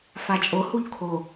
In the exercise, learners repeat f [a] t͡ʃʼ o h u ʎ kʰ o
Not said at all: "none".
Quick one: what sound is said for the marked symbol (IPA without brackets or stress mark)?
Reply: a